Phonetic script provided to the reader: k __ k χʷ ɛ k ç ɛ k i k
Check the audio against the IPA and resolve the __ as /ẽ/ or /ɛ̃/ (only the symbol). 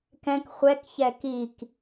ɛ̃